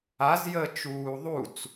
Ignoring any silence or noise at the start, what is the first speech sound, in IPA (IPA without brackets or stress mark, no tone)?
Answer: a